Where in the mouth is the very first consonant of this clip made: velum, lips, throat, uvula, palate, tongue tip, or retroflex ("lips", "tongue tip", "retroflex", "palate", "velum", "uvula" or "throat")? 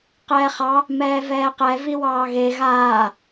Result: uvula